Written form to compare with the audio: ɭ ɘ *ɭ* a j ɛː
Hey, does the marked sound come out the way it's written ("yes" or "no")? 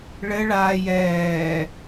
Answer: yes